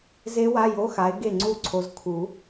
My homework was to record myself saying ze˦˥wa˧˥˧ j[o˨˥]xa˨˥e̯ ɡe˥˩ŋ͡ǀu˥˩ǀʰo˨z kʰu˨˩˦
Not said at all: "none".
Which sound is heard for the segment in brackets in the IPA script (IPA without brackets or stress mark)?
o˧˥˧